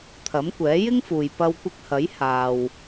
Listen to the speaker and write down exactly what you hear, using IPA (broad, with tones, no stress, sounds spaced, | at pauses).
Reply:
t̪ʰ ɐ˨˥ m kʷ ɛː˨˥ j ɪ˥ ŋ f uː˨ j p ɐ˧ w kʷ ɪ˧ k̚ h ɐ˨˥ j h aː˨ w